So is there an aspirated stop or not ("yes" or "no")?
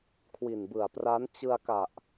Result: yes